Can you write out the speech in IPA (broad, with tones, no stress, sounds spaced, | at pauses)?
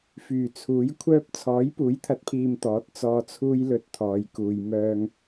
f yː˨˩ t͡sʰ uː˨˥ j kʷʰ œː˥ p̚ t͡sʰ ɔː˨˥ j p uː˨˥ j t̪ʰ ɐ˨˥ t̚ pʰ iː˨ m t̪ ɔː˨˥ t̚ t͡s ɔː˧ t͡sʰ uː˥ j l ɵ˧ t̚ t̪ʰ ɔː˨˧ j k uː˧ j m œː˥ ŋ